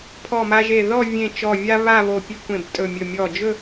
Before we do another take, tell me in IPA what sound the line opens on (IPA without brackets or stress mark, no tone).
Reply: pʰ